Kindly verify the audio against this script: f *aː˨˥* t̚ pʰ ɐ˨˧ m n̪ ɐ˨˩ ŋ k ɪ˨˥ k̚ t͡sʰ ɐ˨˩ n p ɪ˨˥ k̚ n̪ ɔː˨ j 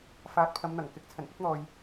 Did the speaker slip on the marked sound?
no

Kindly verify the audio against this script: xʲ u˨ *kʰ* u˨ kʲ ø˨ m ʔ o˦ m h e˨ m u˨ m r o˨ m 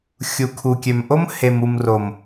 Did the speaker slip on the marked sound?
no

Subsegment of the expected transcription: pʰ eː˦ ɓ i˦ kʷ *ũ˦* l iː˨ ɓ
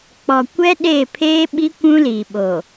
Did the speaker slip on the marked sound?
no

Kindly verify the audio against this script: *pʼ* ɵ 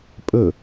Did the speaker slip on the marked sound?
no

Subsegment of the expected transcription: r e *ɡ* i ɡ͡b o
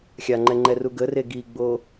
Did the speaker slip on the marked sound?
no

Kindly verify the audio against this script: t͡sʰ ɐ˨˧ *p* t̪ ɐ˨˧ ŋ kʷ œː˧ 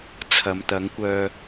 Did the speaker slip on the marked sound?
yes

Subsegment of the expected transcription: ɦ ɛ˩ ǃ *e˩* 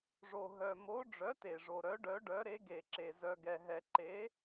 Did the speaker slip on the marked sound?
yes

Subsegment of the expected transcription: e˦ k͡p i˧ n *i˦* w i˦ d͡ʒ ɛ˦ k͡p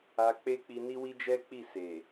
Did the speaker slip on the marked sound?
no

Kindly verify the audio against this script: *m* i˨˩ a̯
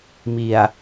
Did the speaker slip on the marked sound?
no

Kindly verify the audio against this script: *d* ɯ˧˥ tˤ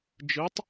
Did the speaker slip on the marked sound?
yes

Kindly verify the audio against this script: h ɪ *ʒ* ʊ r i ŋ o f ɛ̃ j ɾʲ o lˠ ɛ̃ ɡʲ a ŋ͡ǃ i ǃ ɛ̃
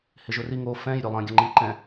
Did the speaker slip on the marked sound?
no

